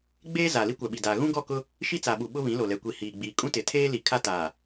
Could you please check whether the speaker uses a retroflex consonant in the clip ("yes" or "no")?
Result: no